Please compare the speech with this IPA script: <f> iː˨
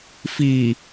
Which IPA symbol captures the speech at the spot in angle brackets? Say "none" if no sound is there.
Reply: f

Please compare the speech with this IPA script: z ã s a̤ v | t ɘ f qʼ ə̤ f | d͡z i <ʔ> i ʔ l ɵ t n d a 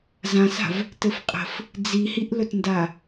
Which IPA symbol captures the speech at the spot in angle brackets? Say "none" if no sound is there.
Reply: h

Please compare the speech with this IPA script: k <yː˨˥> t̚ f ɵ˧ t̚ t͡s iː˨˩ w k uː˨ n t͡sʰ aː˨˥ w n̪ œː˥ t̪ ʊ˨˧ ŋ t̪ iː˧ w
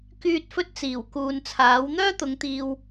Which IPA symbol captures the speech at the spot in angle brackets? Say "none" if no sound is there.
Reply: yː˨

